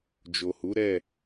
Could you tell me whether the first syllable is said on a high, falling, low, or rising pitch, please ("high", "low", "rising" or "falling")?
low